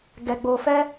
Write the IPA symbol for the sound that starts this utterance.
ɡ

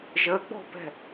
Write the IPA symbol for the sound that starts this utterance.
ʒ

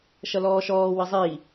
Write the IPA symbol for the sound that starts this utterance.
ʃ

